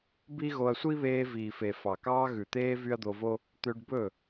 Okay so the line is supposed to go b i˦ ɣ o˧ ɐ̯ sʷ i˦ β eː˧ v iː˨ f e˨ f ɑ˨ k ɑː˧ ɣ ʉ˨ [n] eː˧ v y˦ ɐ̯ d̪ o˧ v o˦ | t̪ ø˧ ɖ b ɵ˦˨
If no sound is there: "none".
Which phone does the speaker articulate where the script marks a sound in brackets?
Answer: t̪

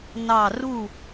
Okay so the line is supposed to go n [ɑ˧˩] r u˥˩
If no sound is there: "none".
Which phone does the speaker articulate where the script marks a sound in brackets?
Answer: ɑ˧˩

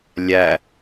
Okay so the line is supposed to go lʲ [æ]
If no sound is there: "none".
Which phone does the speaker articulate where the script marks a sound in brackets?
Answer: æ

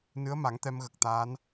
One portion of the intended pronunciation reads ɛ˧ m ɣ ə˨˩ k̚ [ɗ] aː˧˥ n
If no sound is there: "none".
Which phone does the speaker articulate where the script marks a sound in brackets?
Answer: t̪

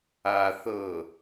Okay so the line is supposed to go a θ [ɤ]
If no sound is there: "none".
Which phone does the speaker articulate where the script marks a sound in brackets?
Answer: ɤ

